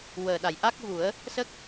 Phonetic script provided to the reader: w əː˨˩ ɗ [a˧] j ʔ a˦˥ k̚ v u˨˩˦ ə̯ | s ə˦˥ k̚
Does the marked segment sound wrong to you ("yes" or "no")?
yes